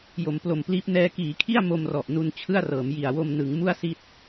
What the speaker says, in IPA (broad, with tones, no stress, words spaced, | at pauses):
jo˩˦mplo˨˩mpliː˦˥p̚ nɛː˧kiː˩˦kʰi˥˩a̯ mo˧mrɔ˨˩ʔnu˧n t͡ɕʰɯ˥˩a̯rɤː˩˦m ji˨˩a̯wo˧m nɯ˩˦ŋ mu˥˩a̯si˦˥t̚